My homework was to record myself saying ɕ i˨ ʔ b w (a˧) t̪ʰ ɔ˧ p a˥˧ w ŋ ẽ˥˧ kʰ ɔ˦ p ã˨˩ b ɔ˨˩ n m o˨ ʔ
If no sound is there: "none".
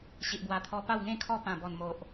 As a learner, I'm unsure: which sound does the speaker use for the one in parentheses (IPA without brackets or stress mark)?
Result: a˨˩